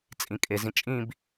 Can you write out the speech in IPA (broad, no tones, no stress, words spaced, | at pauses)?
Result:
t͡sʼĩkʼezĩ t͡ʃʼĩb